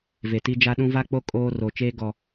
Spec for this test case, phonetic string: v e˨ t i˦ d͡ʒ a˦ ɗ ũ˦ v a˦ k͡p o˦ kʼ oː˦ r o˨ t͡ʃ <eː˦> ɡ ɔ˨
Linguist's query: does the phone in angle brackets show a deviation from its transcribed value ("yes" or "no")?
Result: no